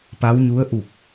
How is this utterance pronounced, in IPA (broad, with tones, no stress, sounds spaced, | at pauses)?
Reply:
p a˧˥ w ɲ u˧˥ ə̯ ʔ u˧˩ k̚